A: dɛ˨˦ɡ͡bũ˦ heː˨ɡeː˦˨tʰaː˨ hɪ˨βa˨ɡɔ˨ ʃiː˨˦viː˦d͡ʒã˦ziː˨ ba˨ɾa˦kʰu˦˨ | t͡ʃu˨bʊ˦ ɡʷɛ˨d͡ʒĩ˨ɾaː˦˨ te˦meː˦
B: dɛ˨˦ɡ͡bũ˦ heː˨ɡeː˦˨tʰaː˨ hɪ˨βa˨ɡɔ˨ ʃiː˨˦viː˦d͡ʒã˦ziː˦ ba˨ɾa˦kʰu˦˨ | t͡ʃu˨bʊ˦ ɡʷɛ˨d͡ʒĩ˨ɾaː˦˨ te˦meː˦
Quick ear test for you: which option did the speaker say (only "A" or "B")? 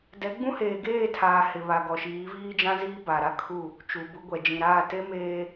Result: B